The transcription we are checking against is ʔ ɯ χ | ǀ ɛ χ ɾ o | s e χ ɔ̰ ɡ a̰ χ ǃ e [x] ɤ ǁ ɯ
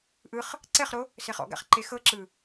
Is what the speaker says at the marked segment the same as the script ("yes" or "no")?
yes